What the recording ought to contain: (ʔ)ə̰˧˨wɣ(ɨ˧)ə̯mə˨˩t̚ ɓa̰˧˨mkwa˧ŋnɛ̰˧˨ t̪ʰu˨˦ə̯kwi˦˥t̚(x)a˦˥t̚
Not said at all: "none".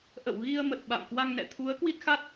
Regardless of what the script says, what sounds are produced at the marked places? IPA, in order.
ʔ, i˧, x

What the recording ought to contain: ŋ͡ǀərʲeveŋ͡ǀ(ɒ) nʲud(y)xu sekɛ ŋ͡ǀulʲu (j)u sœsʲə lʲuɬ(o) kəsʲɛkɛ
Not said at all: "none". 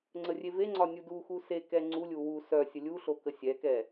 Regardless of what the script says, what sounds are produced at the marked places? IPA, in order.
ɒ, u, w, o

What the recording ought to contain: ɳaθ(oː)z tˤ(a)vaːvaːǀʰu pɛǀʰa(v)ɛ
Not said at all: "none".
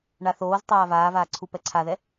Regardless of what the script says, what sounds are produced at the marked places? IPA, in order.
oː, aː, ð

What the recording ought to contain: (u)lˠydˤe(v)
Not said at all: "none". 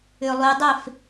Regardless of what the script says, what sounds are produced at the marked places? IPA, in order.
ʏ, f

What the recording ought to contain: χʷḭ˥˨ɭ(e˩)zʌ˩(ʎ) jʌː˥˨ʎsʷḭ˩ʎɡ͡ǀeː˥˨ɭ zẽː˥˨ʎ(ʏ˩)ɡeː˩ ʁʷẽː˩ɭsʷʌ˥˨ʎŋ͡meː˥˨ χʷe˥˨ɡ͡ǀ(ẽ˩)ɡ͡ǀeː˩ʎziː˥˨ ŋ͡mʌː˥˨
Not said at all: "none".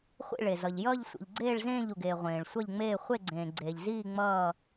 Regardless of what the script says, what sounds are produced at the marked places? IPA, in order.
e˩, ʎ, u˩, ẽː˩

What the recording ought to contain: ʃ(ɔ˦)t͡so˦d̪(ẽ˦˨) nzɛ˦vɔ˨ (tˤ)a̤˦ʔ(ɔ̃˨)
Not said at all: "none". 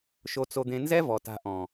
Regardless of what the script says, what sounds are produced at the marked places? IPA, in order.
o˦, ẽ˦, t, ɔ̃˨

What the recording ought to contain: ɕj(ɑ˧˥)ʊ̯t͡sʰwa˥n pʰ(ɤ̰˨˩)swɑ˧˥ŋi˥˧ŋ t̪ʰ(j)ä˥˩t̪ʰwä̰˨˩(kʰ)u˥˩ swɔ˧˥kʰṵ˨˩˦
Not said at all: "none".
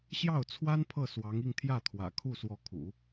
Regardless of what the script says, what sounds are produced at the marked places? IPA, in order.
ɑ˥˩, ɤ˥˩, j, kʰ

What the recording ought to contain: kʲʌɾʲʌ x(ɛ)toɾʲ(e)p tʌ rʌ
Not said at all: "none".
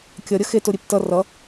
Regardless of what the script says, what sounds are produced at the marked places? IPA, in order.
e, e

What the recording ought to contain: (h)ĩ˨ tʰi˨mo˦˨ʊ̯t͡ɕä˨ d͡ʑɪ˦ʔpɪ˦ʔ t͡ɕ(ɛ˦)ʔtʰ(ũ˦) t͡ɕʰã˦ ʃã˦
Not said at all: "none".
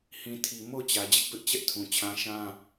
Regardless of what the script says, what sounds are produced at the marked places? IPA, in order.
h, ɛ˦, ũ˨

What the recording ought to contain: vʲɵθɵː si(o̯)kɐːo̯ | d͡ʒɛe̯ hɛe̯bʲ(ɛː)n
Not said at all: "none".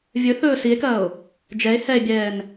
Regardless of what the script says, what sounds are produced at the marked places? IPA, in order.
e̯, ɛː

